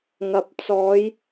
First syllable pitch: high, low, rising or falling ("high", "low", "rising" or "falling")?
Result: low